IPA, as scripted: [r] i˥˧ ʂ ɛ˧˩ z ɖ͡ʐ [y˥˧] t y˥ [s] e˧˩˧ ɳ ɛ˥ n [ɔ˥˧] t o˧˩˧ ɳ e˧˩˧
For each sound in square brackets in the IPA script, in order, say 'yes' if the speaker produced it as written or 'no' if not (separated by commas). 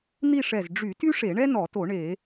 no, no, no, no